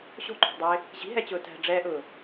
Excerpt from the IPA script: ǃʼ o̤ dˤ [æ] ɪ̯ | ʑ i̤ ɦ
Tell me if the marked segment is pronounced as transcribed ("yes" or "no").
yes